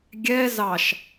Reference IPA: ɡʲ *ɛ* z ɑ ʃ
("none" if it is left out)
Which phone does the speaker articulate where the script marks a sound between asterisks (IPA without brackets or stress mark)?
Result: ɛ